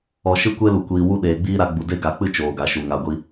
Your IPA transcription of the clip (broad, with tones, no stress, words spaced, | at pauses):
ɔ˨ʃɨ˦˨kʷe˦lu˨ kʷiː˨ wu˦ ɗeː˨ɡ͡biː˦ɾa˧ɡ͡bu˨ de˦ɡa˨˦k͡pɨ˦ t͡ʃoː˨ɡa˨ʃu˨ ŋa˧ɡʷi˦